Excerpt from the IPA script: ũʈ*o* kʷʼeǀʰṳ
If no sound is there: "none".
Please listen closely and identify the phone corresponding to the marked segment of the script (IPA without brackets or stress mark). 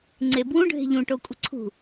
o